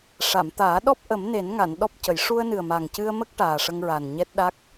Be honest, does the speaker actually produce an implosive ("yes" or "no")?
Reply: yes